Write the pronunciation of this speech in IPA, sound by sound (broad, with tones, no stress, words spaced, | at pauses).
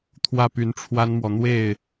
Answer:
t̪ʰwä˥˩py˧˥nʈ͡ʂʰwa˥nmwɔ˨ n̪we˥˩ɪ̯